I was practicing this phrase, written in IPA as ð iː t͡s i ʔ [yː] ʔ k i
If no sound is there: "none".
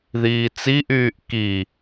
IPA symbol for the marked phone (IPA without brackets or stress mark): yː